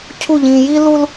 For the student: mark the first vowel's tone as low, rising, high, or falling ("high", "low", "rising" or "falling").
falling